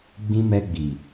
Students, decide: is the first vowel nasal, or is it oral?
nasal